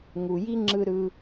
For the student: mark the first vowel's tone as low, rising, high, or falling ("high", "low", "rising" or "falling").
low